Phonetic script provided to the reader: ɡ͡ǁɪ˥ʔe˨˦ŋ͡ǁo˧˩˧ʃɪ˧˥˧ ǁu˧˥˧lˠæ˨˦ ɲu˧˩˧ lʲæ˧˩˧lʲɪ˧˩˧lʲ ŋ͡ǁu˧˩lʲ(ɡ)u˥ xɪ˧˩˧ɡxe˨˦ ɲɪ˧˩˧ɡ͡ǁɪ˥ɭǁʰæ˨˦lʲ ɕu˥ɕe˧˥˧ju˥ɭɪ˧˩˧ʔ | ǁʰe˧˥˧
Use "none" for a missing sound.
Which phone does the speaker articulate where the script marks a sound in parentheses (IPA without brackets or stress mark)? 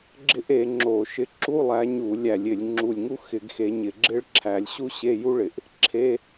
ŋ